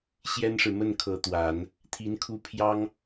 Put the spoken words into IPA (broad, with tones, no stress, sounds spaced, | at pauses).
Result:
ɕ j ɛ˥ n ʂ ɻ̩˨ m ə˥˩ n kʰ ɤ˧˥ t̪ w a˨˩˦ n | t̪ʰ i˧˥ n kʰ u˥˩ pʰ j ɑ˥ ŋ